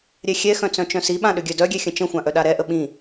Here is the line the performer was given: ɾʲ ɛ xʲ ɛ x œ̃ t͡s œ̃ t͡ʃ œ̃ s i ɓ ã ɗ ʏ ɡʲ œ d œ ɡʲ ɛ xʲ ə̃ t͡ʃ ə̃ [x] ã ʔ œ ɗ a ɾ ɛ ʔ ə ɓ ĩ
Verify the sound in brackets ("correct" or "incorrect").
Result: incorrect